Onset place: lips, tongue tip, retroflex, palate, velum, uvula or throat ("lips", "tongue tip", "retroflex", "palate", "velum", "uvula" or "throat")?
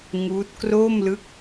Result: velum